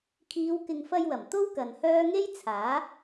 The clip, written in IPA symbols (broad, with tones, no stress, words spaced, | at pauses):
kʰiː˨˧wkɪ˨ŋfɐ˧jwɐ˨˩m t̪o˥w kɐ˨nhœː˥ ŋe˥jt͡sʰaː˨˥